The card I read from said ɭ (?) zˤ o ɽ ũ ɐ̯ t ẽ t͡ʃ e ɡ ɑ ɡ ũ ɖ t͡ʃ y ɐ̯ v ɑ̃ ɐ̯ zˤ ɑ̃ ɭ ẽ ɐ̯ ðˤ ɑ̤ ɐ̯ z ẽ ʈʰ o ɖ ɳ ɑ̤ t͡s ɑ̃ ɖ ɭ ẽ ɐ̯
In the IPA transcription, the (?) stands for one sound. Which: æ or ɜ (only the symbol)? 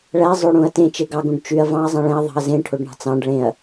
æ